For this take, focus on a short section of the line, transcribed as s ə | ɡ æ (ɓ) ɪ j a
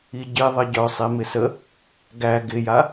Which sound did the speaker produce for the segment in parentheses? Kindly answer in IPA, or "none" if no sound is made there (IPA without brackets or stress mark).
ɡ